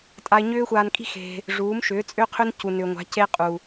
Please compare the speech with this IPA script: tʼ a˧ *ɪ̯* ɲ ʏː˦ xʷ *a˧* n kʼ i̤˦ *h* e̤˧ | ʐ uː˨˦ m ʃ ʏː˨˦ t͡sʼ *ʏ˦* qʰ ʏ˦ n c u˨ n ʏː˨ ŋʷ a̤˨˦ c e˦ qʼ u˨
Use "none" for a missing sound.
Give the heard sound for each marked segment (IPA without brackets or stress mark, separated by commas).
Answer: ɪ̯, aː˧, x, ʏ˦